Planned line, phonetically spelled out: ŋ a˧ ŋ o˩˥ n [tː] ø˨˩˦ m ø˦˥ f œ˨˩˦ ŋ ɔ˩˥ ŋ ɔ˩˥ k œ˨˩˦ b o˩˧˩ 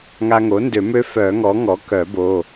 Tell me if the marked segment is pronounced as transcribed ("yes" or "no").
no